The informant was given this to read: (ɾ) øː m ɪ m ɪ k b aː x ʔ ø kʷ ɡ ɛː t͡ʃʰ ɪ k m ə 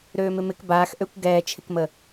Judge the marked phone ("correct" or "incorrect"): correct